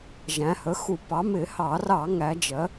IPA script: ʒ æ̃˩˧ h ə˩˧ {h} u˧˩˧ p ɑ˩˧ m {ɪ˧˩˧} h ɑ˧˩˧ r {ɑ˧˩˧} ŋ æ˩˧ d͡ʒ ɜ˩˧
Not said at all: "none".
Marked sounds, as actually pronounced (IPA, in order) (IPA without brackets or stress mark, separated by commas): x, ɪ˧˩˧, ɑ˧˩˧